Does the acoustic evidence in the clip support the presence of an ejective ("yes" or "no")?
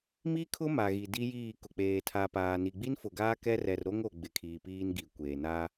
no